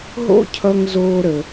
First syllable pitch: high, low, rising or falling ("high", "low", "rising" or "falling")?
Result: high